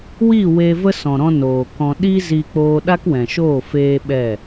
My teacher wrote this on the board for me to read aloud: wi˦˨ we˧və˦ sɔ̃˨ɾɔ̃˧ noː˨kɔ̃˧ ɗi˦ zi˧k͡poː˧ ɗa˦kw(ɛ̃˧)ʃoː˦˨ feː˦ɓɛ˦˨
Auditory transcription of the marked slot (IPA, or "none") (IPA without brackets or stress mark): ɛ̃˨